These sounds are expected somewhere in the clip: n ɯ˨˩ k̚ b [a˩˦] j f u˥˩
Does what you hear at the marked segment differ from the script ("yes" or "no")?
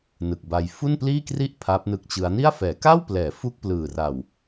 yes